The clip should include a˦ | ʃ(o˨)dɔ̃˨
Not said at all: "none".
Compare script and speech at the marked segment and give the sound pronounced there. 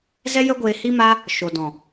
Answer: o˨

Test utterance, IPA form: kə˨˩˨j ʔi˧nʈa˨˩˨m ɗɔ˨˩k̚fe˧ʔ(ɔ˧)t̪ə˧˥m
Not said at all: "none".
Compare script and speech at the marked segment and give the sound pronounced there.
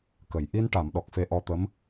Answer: ɔ˧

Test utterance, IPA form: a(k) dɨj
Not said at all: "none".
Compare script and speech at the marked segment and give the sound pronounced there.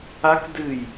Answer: k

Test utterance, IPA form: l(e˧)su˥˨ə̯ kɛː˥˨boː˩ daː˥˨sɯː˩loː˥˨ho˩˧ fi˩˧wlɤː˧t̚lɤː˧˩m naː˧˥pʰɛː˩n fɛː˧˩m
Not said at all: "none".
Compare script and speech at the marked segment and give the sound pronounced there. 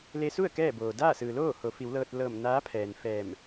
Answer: e˧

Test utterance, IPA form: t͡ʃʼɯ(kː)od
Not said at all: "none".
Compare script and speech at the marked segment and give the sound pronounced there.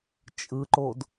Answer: ǃ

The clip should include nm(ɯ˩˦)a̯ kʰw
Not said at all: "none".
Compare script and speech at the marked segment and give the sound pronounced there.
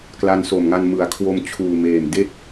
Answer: ɯ˩˦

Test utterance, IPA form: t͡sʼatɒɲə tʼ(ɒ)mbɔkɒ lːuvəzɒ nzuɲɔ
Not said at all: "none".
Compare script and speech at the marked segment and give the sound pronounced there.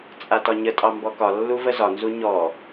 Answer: ɑ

